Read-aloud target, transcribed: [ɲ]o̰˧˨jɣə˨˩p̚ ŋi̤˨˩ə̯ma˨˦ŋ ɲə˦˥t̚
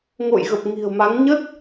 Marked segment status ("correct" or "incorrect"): incorrect